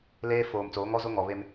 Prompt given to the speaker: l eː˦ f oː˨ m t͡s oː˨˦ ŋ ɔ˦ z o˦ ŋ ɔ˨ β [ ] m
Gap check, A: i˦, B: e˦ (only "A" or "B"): B